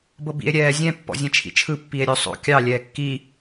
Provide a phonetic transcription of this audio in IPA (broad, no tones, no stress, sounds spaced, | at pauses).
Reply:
b ɤ b ḭ e̯ ɾʲ ɛː zʲ ɛ̃ pː ɔ̰ zʲ ɛ̃ t͡ʃʰ ḭ t͡ʃʰ ɯ pː i e̯ ɾʲ o sˤ o̰ kʲ ɑ lʲ ɛː kː i